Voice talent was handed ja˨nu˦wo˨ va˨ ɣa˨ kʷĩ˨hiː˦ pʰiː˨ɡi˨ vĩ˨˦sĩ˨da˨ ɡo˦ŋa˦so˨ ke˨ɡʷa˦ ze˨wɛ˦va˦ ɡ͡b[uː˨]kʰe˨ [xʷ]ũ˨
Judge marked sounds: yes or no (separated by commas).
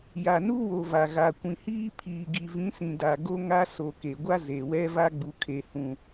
no, no